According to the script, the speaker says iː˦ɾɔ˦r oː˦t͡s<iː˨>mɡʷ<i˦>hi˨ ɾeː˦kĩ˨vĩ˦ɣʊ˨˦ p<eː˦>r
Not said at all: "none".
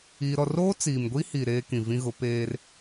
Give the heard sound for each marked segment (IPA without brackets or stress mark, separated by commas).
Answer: iː˨, i˦, eː˦